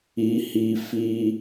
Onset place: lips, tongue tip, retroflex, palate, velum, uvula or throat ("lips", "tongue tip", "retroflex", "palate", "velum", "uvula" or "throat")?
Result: throat